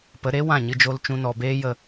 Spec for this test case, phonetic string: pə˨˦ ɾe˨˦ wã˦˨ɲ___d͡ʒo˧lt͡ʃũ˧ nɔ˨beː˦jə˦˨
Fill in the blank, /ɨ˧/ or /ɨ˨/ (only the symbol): ɨ˧